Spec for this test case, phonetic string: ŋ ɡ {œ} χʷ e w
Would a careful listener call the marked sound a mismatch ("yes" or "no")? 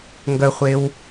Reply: no